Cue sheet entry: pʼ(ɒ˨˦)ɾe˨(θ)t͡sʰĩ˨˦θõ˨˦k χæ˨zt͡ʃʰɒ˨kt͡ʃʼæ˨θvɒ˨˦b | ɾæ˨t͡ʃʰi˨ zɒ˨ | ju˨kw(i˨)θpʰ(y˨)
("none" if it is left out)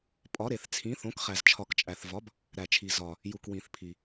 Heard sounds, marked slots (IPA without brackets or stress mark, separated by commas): ɒ˨˦, θ, ĩ˨, i˨